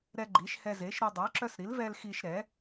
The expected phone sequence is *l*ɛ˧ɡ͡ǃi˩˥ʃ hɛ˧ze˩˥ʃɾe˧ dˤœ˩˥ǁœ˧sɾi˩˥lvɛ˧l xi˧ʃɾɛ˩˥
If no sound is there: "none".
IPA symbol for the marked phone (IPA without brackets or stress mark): ɾ